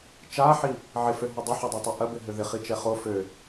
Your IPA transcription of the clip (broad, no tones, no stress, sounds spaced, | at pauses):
t͡ʃ a ħ i | ʕ ɪ f ø ɦ ʊ dˤ ɪ ħ ɐ dˤ ɛ tˤ ɐ ʔ ɐ b ɪ ɦ ʏ ð ɪ χ i t͡ʃ ɛ χ o f ø